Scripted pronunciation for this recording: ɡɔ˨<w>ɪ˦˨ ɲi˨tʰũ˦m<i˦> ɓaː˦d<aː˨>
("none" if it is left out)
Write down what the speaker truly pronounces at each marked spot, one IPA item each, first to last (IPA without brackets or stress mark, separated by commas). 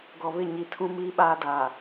β, i˦, aː˨